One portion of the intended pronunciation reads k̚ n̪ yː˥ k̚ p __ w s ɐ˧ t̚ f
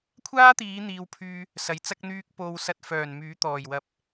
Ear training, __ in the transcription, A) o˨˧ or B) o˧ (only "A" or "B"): B